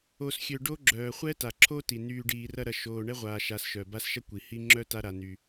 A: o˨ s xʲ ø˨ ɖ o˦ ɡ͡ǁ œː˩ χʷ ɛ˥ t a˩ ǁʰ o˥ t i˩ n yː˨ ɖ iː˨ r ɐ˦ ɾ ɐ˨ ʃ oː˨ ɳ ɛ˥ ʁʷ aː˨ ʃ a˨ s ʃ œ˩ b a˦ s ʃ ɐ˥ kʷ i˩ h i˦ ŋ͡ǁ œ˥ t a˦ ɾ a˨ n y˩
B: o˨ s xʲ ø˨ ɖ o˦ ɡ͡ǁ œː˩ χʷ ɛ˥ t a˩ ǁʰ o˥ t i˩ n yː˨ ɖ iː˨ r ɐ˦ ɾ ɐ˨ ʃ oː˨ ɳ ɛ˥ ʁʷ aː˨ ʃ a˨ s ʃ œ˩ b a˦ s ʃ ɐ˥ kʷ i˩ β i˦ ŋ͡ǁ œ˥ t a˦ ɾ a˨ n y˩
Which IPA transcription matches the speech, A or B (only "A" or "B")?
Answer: A